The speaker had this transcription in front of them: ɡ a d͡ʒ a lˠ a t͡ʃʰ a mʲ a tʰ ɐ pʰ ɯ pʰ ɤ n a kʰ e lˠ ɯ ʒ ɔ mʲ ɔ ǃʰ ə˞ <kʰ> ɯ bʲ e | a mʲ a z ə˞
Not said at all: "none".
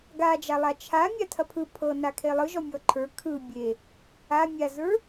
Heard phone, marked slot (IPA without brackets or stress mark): kʰ